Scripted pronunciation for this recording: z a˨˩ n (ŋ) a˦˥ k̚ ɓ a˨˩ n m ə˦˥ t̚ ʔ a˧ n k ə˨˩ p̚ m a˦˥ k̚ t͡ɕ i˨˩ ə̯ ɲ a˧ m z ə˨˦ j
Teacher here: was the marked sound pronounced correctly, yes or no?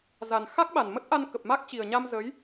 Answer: no